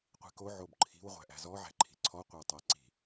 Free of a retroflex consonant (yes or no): yes